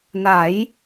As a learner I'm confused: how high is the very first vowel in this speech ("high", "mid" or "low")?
low